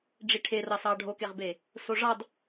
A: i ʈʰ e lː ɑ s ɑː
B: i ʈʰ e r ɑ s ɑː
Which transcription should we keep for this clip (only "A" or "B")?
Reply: B